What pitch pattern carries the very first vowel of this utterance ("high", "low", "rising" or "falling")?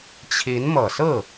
rising